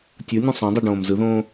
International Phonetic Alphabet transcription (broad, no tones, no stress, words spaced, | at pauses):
tʲɯnʲũ sˤɛ̃dˤiɖõːm zɯðõː